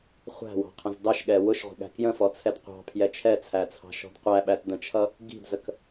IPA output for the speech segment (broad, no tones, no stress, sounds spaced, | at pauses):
χʷ æ̤ w ɑ̤ qʰ ə̃ z d ɑ ʃ ɠ ɛ w ʊ ʃ ʁʷ ə̤ ɠ æ̤ k j ə̃ f ɔ t͡sʰ ɛ d qʷ ɑ̤ pʰ j ɛ t͡ʃʰ ɛ t͡sʰ æ t͡sʰ ɑ̤ ʃ ɔ̤ d qʷ æ ɓ æ t d ə̃ t͡ʃʰ ʌ | ɡ i̤ d z ə k